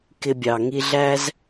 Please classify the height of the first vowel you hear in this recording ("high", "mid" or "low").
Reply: high